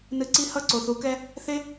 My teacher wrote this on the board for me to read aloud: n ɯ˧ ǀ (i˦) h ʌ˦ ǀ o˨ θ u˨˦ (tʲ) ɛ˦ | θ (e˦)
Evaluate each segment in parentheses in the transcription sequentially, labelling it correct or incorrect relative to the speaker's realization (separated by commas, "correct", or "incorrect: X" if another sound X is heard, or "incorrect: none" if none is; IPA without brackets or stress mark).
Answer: correct, incorrect: k, correct